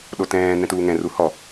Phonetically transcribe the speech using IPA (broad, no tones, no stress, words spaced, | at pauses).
ɗotɛ̃ː nɛ̃tuːŋɛ̃ ruhɔ